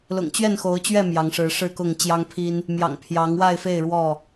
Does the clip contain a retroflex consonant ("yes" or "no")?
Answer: yes